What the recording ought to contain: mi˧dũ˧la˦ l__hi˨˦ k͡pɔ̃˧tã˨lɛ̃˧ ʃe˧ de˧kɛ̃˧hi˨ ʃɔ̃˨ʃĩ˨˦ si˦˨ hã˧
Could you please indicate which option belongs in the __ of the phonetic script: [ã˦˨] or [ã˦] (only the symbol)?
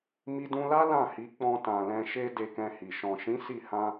ã˦˨